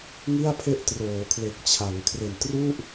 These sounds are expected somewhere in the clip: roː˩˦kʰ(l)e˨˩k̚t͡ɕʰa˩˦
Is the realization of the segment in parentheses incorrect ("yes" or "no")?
no